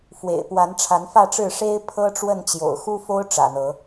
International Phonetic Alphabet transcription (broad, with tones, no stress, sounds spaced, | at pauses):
f w ḛ˨˩ ɪ̯ p w a˨˦ n ʈ͡ʂʰ a˨˦ n f ä˥˨ ʈ͡ʂ ɻ̩˥˨ ʂ e˦ ɪ̯ pʰ ɤ˦ ʈ͡ʂ w ə˥˨ n t͡ɕ j o̰˨˩ ʊ̯ x u˦ f o˦ ʊ̯ ʈ͡ʂ ä̰˨˩ n̪ ɤ˨˦